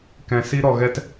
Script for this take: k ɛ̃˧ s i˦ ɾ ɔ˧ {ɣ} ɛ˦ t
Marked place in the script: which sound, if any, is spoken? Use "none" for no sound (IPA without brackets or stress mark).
ɣ